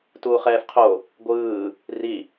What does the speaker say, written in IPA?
t uː χ ɛː f qʰ o | ɡʷ ɯː | r i

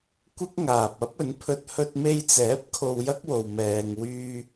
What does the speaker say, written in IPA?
kʷ ɪ˥ k̚ ŋ aː˨ p̚ ɐ˥ p̚ ɵ˨˥ n pʰ ɵ˧ t̚ h ɵ˧ t̚ m e˧ j t͡s ɛː˨˥ p̚ kʰ o˧ w j ɐ˥ k̚ w o˨ w m ɛː˨ ŋ w yː˧

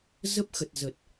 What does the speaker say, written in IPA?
z ə˦˥ p̚ x ə˨˩ t̚ z ə˨˩ t̚

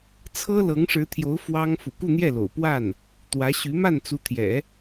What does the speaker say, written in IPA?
t͡sʰ ɤ˥ l ɤ˧˥ ŋ ʂ ɻ̩˧˥ t̪ʰ j o˧˥ ʊ̯ f w ɑ˥ ŋ f ṵ˨˩ k u˥˧ n̪ j ɛ˥˩ l o̰˨˩ ʊ̯ p w a˥˩ n | t̪ w ä˧˥ ɕ y˧˥ m a˥˩ n t͡s u˧˥ t̪ʰ j ɛ̰˨˩˦

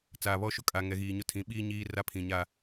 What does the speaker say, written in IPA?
t͡s aː˨ β ɔ˦ ʃ ʊ˦ kʼ a˨ ŋ ɛ˨ ɣ iː˨ ɲ ʊ˦ tʰ ĩ˨˦ ɓ iː˦ ɲ iː˦ r a˦ pʰ ĩ˨ ɲ a˦

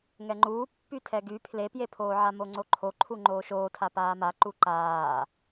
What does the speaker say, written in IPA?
ŋ ɛ ŋ͡ǃ uː pː y tʰ ɛ ɡ y pʰ l e p j e pʰ oː ʕ a m o ŋ͡ǀ o ǃʰ o ǃʰ u ŋ͡ǃ oː ʃ oː tʰ a p aː m a ǃ u ǃ aː

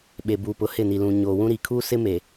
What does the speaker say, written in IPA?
ɓ e˨ b uː˨ p ʊ˨˦ h ɪ˦˨ n i˨ l ũ˨ ɲ oː˨ w ũ˦ ɾ iː˨ kʰ uː˦ s ɪ˦ m e˨

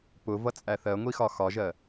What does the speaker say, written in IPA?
p ʊ v ʌ t͡sʼ æ θ ɜ ŋʷ i x ɒ x ɒ ʒ ɜ

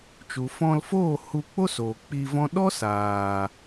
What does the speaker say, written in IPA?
t͡ʃ u˨ f ɔ̃˧ l f oː˦˨ h u˧ k͡p o˦ s oː˨ k͡p i˧ v ɔ̃˦ ɗ ɔ˦ s aː˨

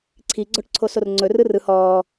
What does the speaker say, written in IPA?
ǀʰ i ɡ͡ǀ ɔ ʈ ǀʰ o s o r ŋ͡ǀ ɵ r ɯ r ɯ h ɔː

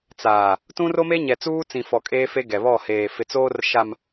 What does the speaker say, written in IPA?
t͡s aː˨ | t ũ˦ r o˦ m e˦ ɲ ɛ˨ t͡s uː˦ t͡s ĩ˨ f ɔ˨ kʼ eː˦ f e˦ ɡ ɛ˨ β ɔ˦˨ h eː˨ f ɪ˨ t͡s oː˦ r ʃ a˨ m

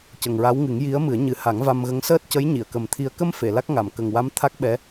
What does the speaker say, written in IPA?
c ə˨˩ ŋ ɹ a˧˥ w ŋ ɨ˨˩˦ ŋ j i˧˥ ə̯ m ɨ˨˩˦ ə̯ ɲ ɨ˨˩˦ h a˨˩˦ ŋ v a˧ m ɣ ə˧˥ ŋ s əː˦˥ t̚ c ə˧˥ j ɲ i˨˩˨ ə̯ k ə˨˩ m t̪ʰ i˧ ə̯ k ə˧ m f e˨˩˨ l a˦˥ k̚ ŋ a˨˩˨ m k ə˨˩ ŋ w a˧˥ m t̪ʰ a˦˥ k̚ ɓ ɛ˧˥

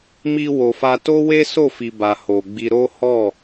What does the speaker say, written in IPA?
m i˧ w o˨ f a˧ t o˦ w e˦ s o˦˨ f i˨ b a˨ h o˨ ɡ͡b i˧ ɾ o˦ h ɔ˦˨

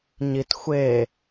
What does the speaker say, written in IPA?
ɲ i t xʷ e

